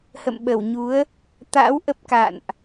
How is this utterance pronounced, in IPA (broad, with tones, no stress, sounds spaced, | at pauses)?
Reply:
h ə̰˧˨ m ɓ ə˧˩ w ɲ u˨˦ ə̯ | t̪ a̰˧˥ w ʔ ə˦˥ p̚ k a̰˧˨ n ʔ